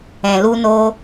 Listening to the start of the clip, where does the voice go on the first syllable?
low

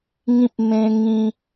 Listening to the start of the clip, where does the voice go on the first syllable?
high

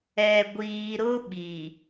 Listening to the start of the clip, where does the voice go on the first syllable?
low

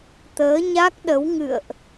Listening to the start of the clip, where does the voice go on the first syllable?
rising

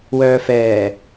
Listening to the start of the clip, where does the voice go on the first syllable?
low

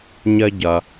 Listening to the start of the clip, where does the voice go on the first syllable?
high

